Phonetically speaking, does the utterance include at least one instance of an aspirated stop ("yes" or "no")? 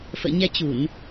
no